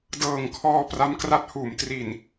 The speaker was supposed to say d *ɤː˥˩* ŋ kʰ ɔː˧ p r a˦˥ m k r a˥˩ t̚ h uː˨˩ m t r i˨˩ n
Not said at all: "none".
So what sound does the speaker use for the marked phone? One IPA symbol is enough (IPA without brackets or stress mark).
ɤː˨˩